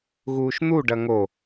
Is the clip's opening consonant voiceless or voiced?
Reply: voiced